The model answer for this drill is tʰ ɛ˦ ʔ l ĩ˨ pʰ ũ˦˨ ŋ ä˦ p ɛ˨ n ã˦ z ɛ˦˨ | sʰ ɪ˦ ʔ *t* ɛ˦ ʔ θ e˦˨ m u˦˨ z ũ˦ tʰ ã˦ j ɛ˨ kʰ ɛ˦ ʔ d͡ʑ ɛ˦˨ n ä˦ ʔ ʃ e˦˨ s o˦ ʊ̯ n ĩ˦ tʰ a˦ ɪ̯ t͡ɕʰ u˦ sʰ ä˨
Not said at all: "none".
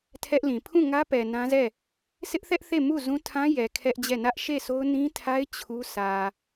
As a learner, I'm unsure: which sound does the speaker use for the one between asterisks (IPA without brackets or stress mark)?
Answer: θ